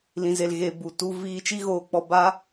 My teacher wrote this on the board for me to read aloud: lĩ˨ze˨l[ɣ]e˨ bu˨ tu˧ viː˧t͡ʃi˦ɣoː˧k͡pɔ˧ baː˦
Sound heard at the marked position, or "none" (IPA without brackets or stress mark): ɣ